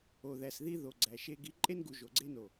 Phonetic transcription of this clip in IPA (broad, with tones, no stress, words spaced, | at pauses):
o˨ðæ˨sði˦ ðo˨ɡ͡ǀæ˨ ʃe˦ ɡi˨˦ǃʼe˦nɡu˨ ʒo˨ɡ͡ǀe˦no˨